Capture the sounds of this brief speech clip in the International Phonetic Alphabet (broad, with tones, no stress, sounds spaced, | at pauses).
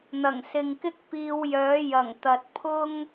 n̪ ɐ˨˩ ŋ s ɪ˨ ŋ k ɪ˥ k̚ p iː˨˧ w j œː˨˥ j ɐ˨˩ ŋ t̪ ɐ˨ t̚ pʰ ʊ˥ ŋ